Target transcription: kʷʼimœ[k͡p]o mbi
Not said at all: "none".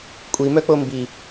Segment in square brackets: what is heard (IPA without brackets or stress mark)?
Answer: k͡p